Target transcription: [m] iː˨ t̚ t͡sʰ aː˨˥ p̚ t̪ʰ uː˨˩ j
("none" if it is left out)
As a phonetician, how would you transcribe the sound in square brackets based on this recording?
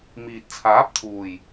m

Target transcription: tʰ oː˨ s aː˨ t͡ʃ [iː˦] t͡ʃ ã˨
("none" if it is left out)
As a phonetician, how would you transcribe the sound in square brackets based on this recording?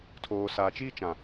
iː˦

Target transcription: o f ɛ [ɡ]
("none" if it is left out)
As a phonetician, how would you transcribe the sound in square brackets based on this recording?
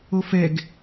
ɡ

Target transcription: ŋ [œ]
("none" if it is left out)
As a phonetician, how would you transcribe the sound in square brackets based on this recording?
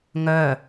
œ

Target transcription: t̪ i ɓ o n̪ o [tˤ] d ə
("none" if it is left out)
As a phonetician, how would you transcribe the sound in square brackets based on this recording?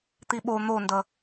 n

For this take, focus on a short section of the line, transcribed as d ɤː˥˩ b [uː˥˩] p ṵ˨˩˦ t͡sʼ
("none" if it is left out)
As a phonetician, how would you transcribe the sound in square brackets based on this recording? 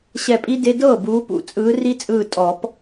uː˨˦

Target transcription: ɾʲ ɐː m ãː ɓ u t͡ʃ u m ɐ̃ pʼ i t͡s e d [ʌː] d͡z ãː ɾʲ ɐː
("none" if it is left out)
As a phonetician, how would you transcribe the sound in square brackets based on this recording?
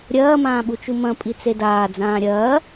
aː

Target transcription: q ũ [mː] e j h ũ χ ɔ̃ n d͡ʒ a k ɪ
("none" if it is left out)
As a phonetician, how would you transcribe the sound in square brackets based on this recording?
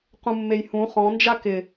mː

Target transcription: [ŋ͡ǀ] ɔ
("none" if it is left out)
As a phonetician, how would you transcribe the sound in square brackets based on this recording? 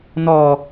n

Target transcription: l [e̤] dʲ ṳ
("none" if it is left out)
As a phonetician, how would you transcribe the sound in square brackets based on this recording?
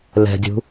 ɛ̤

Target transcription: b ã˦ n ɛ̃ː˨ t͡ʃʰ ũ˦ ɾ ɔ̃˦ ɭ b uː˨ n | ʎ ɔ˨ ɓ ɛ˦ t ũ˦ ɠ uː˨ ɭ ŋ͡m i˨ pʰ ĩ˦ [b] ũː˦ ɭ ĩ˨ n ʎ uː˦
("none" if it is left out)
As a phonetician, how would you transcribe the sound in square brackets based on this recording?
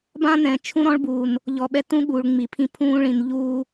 pʰ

